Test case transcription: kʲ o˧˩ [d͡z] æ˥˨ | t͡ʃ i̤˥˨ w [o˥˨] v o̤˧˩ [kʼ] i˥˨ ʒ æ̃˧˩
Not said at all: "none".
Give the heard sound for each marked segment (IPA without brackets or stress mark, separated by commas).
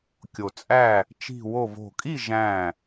t͡sʼ, o˥˨, kʼ